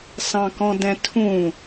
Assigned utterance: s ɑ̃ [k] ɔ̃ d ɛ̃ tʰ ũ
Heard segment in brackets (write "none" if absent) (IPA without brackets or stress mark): k